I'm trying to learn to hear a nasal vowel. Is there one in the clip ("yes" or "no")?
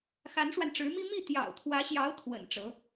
no